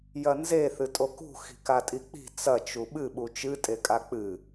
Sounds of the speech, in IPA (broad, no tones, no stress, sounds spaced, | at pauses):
j ɐ n z e θ ɨ tʼ o k ṳ x i̤ k a tʼ i k͡p i̤ t͡s ɐ t͡ʃ u ɓ ɨ ɓ u t͡ʃ ɨ tʼ e kʼ a k͡p ɨ